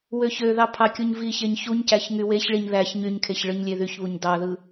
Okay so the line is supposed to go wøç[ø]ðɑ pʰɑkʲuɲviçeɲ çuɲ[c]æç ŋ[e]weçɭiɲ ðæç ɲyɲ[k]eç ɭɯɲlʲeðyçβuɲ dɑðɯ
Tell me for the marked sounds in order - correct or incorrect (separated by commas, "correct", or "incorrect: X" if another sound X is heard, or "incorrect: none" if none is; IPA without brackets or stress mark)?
correct, correct, incorrect: y, incorrect: kʰ